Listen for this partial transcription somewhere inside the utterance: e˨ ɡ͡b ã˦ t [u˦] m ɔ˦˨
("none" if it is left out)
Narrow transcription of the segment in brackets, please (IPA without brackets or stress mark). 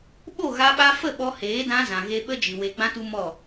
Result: u˦